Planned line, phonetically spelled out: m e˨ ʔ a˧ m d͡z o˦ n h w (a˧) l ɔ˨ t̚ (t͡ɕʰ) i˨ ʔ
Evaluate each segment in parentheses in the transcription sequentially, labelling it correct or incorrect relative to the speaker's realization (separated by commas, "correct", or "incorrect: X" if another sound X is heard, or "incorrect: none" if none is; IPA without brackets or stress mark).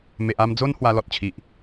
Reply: correct, correct